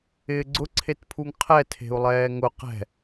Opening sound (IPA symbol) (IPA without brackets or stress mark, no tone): ɪː